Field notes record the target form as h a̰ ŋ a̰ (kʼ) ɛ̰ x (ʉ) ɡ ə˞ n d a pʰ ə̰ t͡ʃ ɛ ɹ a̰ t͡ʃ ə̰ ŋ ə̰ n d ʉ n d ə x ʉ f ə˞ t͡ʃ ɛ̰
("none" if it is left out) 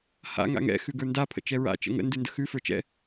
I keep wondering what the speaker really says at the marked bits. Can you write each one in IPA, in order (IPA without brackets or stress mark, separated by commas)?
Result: ŋ, ʉ